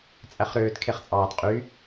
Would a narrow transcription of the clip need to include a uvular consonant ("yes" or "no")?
yes